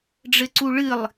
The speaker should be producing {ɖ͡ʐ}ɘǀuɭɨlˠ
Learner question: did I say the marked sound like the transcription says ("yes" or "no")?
yes